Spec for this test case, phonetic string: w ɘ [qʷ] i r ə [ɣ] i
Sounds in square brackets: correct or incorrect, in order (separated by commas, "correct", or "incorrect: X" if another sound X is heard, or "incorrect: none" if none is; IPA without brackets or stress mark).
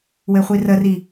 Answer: incorrect: χʷ, incorrect: r